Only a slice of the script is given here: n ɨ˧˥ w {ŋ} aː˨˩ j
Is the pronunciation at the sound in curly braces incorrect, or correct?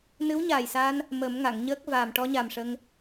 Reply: incorrect